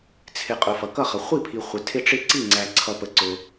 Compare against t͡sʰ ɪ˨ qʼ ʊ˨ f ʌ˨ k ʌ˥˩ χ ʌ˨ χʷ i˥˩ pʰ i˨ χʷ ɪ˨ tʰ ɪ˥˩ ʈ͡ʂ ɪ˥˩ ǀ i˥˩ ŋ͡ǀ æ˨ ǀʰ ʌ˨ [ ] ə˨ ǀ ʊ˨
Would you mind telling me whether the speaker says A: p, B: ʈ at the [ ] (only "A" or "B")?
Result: A